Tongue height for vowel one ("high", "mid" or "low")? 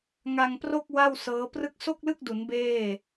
low